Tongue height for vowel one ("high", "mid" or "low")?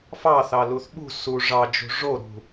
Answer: low